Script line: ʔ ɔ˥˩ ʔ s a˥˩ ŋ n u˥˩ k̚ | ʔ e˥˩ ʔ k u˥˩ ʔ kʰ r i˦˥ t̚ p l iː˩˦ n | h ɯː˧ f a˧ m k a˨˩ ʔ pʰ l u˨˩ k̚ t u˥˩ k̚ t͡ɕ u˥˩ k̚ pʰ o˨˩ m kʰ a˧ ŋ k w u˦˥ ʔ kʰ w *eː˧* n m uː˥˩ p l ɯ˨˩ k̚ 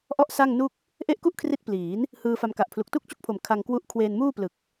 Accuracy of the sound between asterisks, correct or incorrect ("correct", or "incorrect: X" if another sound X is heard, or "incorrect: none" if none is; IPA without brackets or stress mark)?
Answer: correct